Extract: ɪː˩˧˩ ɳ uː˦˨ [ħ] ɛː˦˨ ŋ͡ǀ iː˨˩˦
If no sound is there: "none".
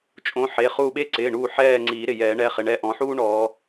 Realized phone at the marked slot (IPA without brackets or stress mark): ħ